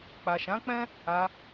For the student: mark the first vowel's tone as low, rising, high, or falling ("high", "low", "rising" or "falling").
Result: low